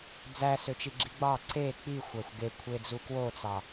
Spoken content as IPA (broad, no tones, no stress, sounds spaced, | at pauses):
d͡z æ s ø t͡ʃ i ɡ͡ǁ i ɡ͡b ɑ ǀ e k͡p i xʷ æ xʷ ɡ e kʷʰ e d͡z u k w o t͡s ɑ